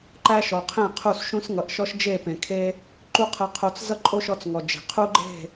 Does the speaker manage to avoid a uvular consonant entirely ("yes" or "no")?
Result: no